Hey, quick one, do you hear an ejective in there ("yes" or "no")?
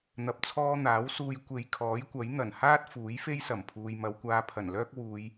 no